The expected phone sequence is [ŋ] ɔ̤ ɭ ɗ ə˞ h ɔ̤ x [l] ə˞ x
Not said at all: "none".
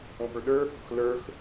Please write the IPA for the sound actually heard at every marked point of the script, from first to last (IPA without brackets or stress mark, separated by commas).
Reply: ŋ, l